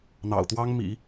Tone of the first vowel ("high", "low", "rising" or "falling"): low